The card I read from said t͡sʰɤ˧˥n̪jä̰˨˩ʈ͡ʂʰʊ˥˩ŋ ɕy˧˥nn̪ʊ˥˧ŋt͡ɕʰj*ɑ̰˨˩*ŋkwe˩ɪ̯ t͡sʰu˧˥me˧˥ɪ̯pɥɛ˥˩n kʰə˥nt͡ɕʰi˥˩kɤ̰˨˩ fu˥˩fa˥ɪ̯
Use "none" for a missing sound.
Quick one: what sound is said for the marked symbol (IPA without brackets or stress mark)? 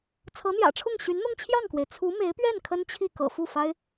ɑ˥˩